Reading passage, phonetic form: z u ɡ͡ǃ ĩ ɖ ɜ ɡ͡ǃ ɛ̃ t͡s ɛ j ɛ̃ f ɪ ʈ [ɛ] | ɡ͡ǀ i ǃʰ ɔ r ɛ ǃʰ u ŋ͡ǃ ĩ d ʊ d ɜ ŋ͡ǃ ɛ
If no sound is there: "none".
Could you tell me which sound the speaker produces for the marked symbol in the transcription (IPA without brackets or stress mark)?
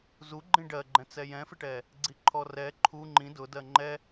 ɛ